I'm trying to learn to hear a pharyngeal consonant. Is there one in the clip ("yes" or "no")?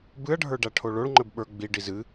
no